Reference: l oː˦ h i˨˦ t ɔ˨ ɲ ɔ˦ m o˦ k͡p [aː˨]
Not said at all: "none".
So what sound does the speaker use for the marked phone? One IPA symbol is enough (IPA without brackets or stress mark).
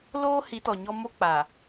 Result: aː˨